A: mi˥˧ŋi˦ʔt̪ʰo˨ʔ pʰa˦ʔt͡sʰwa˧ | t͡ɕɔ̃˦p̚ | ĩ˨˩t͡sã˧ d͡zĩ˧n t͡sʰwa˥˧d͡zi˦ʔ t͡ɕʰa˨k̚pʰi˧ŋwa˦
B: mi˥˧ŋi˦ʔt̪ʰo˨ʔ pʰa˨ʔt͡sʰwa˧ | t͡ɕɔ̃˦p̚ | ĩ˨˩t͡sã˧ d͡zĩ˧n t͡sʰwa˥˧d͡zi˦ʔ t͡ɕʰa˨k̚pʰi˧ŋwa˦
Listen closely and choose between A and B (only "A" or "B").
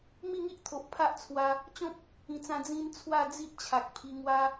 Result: A